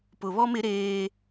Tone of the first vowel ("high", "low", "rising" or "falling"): low